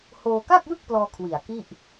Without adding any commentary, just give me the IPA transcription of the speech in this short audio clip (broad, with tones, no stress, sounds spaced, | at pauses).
h oː˧ k a˥˩ k̚ j ɯ˥˩ k̚ p l ɔː˧ kʰ w i˨˩ a̯ k i˥˩ ʔ